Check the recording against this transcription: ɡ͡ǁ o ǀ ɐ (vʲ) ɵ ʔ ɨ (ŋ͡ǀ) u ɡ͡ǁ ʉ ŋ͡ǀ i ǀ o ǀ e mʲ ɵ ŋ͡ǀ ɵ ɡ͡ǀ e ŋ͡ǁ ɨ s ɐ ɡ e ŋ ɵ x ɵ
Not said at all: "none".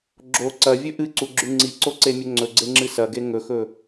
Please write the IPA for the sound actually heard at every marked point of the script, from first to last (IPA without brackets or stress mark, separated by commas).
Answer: vʲ, ǀ